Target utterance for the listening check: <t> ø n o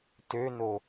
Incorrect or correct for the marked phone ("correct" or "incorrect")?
correct